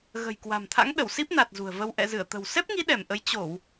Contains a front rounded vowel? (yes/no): no